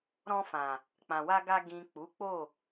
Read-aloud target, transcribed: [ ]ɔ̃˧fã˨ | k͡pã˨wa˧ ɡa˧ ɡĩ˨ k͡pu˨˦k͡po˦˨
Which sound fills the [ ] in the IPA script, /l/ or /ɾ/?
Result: ɾ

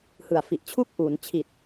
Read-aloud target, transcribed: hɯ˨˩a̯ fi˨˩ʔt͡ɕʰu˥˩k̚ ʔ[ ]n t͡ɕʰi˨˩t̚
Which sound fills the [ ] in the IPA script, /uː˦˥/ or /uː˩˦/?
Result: uː˩˦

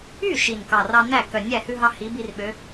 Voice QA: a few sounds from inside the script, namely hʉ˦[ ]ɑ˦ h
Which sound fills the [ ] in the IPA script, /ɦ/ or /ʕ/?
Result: ɦ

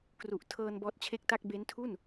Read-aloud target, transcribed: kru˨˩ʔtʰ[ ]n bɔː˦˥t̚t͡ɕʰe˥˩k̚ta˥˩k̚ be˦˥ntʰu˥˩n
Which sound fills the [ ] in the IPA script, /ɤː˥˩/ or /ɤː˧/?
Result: ɤː˧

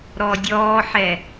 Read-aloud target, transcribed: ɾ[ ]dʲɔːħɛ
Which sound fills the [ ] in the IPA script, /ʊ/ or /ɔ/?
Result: ɔ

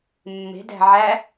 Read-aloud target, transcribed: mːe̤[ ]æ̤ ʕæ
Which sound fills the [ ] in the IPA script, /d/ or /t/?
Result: d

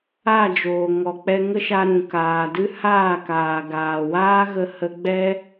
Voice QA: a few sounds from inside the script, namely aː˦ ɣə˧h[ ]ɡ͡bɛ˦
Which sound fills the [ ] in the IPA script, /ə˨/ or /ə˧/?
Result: ə˧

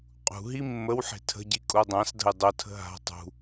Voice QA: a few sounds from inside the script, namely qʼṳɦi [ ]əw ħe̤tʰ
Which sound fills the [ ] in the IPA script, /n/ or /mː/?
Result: mː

